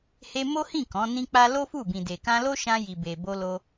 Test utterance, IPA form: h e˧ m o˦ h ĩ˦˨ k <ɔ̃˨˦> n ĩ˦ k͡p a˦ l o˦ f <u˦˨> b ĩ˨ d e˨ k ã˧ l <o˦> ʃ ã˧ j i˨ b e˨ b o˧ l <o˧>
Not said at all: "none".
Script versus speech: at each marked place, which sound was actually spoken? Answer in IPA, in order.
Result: ɔ̃˨˦, u˦˨, o˦, o˧

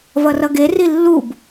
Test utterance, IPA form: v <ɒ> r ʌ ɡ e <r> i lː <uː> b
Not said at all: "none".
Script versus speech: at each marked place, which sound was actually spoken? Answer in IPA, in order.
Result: ʌ, r, u

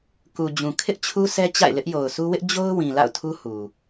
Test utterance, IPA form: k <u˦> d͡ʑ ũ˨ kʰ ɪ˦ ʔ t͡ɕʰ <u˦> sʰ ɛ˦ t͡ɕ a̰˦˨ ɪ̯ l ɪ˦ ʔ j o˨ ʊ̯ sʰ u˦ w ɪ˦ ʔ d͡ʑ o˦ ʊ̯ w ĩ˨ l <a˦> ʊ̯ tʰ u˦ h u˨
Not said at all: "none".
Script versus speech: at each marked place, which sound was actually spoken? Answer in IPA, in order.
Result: u˨, u˦, a̰˦˨

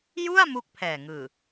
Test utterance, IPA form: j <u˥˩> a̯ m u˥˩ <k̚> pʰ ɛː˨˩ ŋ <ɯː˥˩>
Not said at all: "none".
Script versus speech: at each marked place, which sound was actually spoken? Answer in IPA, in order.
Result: u˥˩, k̚, ɯː˨˩

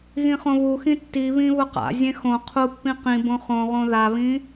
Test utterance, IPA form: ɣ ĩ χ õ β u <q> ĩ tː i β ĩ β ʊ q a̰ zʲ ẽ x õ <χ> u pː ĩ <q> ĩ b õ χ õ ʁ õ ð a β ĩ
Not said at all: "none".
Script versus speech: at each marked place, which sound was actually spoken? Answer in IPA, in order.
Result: x, qʰ, q

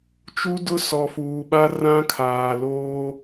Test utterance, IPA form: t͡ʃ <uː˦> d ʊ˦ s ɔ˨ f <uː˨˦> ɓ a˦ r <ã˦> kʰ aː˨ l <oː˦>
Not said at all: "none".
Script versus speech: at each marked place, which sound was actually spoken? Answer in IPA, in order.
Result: u˦, uː˨, ã˦, oː˦

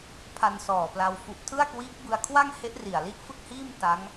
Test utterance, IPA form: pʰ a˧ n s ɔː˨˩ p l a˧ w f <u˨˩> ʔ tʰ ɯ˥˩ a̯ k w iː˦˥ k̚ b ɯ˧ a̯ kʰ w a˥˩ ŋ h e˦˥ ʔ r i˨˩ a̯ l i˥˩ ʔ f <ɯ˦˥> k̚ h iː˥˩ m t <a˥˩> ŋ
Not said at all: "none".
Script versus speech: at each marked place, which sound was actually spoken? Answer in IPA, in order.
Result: u˨˩, ɯ˥˩, a˦˥

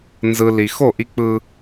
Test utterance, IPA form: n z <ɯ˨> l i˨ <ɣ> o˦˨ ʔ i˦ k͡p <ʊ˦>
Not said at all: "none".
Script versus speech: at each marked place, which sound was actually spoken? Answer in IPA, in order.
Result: ɯ˨, x, ɯ˦

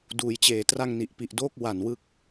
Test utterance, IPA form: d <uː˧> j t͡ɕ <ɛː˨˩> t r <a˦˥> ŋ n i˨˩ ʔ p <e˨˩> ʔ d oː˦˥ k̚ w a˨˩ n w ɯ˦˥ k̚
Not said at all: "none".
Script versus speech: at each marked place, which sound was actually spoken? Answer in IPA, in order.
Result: uː˩˦, eː˨˩, a˧, i˨˩

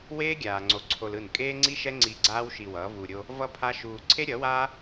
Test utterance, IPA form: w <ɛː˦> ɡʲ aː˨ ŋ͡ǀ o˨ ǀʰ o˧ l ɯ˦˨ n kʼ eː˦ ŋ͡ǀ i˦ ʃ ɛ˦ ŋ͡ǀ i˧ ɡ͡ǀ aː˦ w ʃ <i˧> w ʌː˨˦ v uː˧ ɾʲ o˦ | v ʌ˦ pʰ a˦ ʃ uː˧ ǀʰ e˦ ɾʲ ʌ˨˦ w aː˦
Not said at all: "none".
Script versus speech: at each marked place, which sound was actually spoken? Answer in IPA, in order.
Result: eː˦, i˧

